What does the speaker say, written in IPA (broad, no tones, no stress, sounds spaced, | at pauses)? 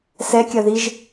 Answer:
s ɛ kʲ ɐ ð i ʒ